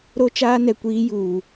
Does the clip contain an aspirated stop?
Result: no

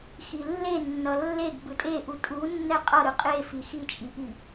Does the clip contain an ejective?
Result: yes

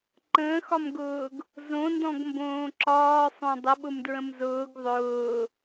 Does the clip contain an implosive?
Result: yes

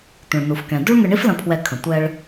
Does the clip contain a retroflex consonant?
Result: yes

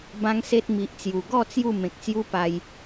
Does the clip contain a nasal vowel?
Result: yes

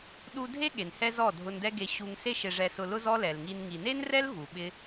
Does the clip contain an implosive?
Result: yes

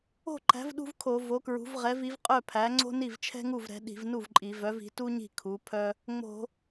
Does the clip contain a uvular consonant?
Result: yes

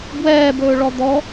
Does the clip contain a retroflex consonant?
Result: yes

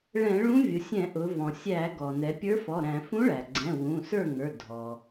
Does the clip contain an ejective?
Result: no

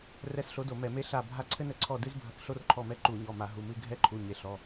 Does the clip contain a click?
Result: yes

